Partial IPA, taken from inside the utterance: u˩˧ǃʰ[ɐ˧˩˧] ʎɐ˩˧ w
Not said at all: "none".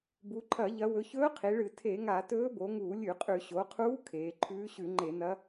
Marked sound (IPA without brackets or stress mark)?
ɐ˧˩˧